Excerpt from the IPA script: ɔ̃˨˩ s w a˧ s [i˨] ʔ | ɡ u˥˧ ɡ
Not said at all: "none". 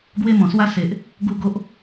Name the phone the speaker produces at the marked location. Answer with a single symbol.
e˨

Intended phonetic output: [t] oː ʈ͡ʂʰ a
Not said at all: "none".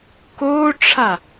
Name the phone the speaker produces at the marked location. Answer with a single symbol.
k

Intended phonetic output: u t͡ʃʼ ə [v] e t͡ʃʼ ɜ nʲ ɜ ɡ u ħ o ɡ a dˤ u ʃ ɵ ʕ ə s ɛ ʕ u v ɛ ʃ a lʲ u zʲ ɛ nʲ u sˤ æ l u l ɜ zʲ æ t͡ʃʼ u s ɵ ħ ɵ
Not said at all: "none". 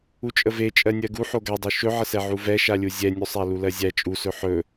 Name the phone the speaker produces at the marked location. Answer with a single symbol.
v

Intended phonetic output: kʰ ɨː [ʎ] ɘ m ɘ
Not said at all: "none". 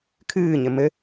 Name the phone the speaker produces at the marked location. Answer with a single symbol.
ɲ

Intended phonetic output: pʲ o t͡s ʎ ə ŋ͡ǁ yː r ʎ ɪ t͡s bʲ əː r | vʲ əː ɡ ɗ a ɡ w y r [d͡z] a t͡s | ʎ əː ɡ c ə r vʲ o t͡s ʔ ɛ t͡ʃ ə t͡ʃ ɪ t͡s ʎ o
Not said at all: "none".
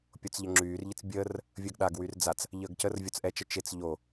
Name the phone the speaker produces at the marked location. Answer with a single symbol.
d͡z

